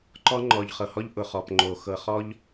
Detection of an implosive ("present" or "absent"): absent